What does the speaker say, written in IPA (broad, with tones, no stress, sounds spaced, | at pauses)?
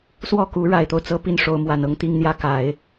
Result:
s w ɔ˥˩ k u˧˥ ɻ a˨˩ ɪ̯ t̪ o˦ ʊ̯ t͡s ɤ˥ p i˥˩ n ʂ o˧˥ ʊ̯ m w a˨˩ n ɤ˥˧ ŋ t̪ i˥˧ ŋ n̪ j ä˥˩ k a˨˩˦ ɪ̯